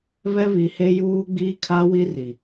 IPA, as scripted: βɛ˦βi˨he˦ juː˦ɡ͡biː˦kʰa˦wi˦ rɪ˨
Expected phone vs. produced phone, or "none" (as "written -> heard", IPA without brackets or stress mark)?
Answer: ɪ˨ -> i˨